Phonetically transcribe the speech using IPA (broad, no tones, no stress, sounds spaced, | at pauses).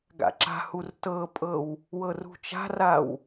ɡ a̰ ǁ a̤ h u r t ɤ pʼ ɤ w | w ɤ r ṳ t͡ʃ a̤ r a w